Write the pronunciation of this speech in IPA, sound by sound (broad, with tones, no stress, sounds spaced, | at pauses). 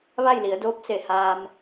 ʋ a˥˨ j l i˩˧ ə̯ d oː˧˥ p̚ s e˩ h aː˧ m